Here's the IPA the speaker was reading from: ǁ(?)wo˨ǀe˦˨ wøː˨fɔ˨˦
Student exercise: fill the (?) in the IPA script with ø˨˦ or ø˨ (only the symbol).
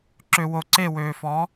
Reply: ø˨